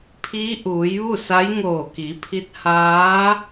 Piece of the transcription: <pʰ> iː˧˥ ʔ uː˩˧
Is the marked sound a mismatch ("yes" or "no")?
no